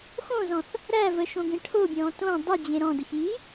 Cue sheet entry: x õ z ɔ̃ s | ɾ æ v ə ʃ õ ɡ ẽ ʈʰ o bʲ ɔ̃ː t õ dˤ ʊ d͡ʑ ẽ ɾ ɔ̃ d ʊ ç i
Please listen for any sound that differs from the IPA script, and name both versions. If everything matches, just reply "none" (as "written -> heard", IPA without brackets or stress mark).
s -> θ